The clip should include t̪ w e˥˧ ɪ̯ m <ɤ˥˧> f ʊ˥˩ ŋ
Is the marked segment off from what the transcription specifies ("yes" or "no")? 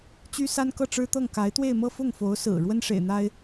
no